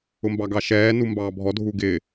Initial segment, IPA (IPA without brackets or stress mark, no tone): ʊ